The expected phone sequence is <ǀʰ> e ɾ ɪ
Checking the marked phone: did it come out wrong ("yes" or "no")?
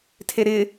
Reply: yes